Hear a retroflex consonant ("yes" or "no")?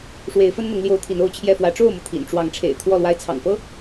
yes